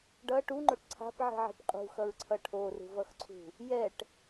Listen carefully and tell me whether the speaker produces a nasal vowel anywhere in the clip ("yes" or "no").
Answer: no